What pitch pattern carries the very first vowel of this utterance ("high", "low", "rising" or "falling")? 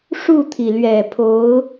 falling